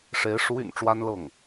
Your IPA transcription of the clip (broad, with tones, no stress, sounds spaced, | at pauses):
ʂ e˧˥ ɪ̯ ʂ u˧˥ y̰˨˩ n ʈ͡ʂ w a˥ n l ɤ˥˩ ŋ